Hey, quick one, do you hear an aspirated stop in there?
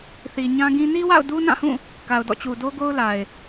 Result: no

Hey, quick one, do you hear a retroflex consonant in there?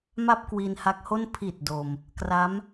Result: no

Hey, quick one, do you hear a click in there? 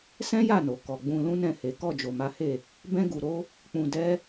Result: no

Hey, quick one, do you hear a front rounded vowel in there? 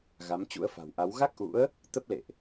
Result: no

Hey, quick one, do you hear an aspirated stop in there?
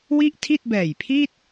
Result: yes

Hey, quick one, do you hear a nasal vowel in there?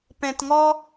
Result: yes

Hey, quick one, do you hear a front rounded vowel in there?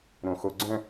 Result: yes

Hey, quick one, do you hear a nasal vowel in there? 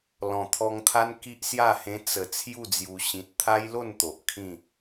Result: yes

